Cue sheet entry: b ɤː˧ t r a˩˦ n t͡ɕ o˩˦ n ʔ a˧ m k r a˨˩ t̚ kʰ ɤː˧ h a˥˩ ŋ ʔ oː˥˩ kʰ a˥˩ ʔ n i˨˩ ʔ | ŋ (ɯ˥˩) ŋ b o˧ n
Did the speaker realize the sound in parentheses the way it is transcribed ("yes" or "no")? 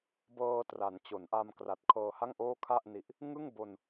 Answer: yes